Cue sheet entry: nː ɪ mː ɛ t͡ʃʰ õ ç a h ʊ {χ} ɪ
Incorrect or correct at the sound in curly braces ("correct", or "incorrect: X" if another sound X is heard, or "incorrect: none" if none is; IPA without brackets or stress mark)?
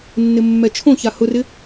incorrect: r